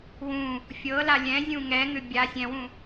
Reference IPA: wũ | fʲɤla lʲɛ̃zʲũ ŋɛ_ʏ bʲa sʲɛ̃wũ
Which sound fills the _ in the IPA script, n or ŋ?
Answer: ŋ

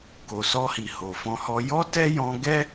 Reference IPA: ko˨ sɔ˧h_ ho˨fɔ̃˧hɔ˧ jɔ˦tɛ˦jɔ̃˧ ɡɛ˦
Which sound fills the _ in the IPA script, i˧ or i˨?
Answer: i˨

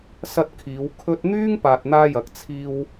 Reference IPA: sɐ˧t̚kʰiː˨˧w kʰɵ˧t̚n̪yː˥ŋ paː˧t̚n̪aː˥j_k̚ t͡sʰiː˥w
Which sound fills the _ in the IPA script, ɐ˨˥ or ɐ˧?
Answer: ɐ˨˥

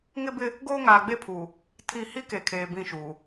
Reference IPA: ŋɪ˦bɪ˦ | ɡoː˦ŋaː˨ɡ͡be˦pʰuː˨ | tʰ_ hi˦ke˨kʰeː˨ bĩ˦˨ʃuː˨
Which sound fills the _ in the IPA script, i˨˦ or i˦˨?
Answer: i˦˨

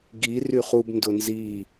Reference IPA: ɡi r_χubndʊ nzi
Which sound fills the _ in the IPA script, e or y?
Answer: y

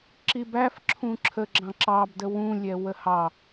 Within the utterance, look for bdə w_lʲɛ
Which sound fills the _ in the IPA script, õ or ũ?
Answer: ũ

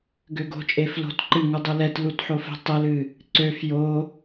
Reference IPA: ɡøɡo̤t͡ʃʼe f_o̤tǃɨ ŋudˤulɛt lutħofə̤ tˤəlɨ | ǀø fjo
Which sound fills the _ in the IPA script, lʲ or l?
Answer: l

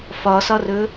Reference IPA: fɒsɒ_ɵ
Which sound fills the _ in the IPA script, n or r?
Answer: r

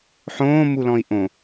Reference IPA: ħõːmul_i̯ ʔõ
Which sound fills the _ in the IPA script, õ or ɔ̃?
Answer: ɔ̃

